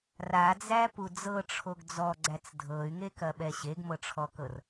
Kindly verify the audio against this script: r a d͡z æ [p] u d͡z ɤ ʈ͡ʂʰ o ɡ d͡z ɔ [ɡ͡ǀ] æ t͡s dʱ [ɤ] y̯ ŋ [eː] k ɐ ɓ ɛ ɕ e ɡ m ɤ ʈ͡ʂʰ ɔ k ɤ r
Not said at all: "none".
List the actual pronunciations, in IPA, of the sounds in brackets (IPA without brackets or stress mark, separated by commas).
p, ɡ͡ǀ, ɤ, e